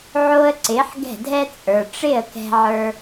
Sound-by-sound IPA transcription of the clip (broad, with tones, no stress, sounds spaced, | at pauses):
ʕ oː˦ ə̯ ǀ ɪː˨˦ ħ ɡ ɛ̤˦˨ dʱ ɛ˦ t͡sʼ ə˞˨ ʈ͡ʂ ɪ˦˨ ə̯ k ɛ̤˧ ʕ ə˞˧